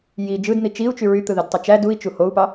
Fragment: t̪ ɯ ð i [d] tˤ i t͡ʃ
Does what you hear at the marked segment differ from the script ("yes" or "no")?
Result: no